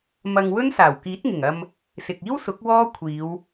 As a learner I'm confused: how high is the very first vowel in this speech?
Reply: low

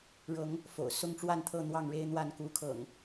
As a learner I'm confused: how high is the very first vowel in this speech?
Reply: mid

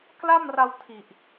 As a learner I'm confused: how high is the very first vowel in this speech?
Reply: low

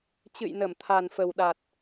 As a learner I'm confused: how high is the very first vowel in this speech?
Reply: high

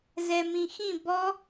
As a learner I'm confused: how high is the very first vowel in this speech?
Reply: mid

